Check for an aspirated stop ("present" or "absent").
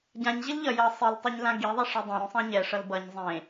absent